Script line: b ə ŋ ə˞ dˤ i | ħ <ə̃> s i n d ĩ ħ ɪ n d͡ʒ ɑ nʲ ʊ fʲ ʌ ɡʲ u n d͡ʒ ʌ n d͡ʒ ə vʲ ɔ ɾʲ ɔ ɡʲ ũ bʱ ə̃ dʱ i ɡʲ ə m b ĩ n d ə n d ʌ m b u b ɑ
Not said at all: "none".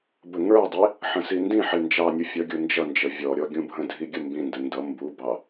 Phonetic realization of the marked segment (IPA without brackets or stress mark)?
ə̃